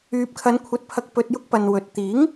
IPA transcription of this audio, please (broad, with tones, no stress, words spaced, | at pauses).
yː˨p̚kʰɐ˨˧nkʷʰɐ˨˥t̚pʰɐ˨k̚ pɵ˧t̚jʊ˥k̚pɐ˨nwɵ˨t̚ t̪iː˨˥ŋ